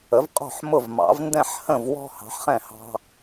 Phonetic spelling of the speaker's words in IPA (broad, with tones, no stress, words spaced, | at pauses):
ə˩˥vqʼɔ̤˥˩ħ mʊ˥˩vmɑ̰˩˥v ndɛ̃˥˩ħhə̃˥˩vwɔ̤˦ hɑ̤˩˥ħχɛ̃˥˩ hɑ̤˦